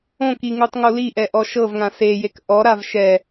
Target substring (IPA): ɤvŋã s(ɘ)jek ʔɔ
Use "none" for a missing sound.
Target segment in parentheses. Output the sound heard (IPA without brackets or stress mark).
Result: e